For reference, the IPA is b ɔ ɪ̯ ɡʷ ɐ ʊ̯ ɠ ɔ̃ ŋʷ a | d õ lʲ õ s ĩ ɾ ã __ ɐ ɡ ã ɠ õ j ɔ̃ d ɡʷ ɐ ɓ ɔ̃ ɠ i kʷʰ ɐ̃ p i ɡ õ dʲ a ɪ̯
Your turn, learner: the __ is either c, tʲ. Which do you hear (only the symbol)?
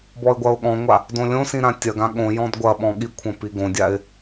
tʲ